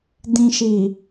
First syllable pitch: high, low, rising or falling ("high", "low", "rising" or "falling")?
low